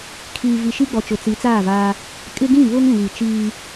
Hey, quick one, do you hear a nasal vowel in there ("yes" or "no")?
yes